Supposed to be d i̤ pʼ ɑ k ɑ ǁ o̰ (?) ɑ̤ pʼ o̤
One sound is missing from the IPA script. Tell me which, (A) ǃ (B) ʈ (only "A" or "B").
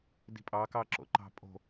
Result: A